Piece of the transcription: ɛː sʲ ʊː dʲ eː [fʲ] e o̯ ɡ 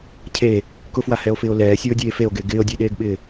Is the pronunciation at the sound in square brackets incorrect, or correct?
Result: incorrect